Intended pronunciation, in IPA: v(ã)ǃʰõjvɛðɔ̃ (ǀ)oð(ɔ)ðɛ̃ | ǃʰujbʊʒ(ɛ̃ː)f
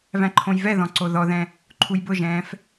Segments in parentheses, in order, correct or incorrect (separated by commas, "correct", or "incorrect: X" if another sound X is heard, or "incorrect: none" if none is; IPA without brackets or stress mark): incorrect: æ̃, correct, correct, correct